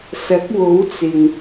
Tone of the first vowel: rising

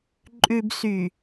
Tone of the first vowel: low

